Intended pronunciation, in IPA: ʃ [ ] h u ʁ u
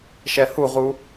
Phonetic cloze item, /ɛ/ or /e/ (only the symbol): ɛ